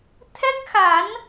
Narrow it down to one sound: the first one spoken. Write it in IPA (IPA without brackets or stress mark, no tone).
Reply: t̪ʰ